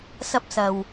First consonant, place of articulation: alveolar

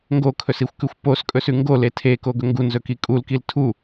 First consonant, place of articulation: velar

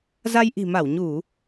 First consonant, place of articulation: alveolar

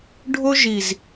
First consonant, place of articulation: retroflex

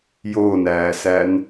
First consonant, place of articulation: palatal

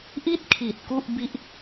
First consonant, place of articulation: glottal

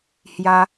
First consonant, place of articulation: glottal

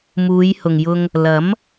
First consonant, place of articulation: labial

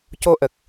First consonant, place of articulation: palatal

